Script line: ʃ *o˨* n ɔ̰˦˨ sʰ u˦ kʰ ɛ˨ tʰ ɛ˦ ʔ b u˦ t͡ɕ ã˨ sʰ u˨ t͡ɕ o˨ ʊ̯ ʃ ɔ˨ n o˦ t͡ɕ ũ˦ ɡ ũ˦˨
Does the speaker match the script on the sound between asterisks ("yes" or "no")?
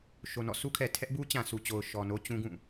yes